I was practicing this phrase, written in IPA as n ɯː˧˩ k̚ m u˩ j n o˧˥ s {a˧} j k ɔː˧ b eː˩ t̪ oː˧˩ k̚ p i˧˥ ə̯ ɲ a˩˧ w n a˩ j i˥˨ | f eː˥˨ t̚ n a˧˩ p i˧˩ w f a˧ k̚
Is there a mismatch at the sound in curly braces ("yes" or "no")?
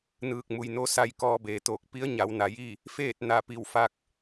no